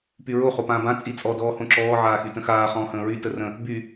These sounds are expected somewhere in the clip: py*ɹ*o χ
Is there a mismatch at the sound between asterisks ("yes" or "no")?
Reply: no